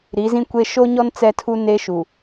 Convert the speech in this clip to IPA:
ɾi˨˦zĩ˦kʷe˦ ʃo˦ɲɔ˦n t͡sɛ˦tʰu˦ne˦ ʃu˨

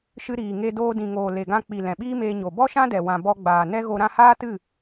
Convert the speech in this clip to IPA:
ʃɨ˧ɾiː˨ ŋe˧doː˧dĩ˨ŋoː˨ le˨ɡã˧k͡pi˨ lɛ̃˨ɓiː˦meː˧ ɲo˨ bɔ˦ʃã˦dɛ˨ wã˨ bɔ˧ɡ͡baː˨ nɛ˦ɣo˧ ɾã˧haː˦tɨ˦˨

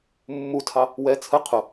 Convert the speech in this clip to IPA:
mːutʰɑ | wɛ t͡sʰə qʰʊ

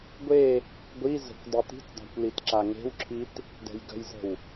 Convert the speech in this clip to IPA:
ɡʷe | ɡʷi zə̤kʷ dˤit̪i̤tdˤa̤kʷ litǁaŋe̤wǁʰit | dɛ̤jɡə̤jzə̤w

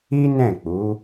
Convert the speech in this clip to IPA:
i˦nɛ̃˦˨k͡pu˨˦

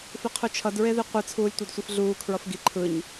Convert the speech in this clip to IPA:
fiqʰut͡ʃʰʌd ɹeðiqʷɯ t͡sʰuːlʲtʷedsʷifɮuː kʰɹʌfɡi ǃʰɯɲ

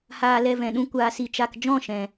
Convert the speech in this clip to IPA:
haː˧lɛ˧ vɛ̃˨ɗũ˧ kʷaː˧si˧t͡ʃa˧k d͡ʒɔ̃˦˨ʃɛ̃˨

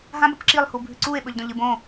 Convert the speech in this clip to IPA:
ɦãbɐp ǁilˠhu bʱʉǀue̯ɓɵʎ dõʎɨbõ

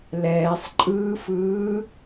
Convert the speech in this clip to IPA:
lɛːsˤǃʼɯːfɯː

